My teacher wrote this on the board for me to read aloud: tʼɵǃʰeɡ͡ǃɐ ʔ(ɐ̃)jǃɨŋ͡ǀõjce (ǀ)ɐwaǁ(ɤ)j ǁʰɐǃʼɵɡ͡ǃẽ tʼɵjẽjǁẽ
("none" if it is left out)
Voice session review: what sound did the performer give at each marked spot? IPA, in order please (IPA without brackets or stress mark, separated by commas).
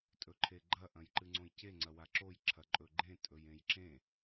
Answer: ɐ̃, ŋ͡ǀ, o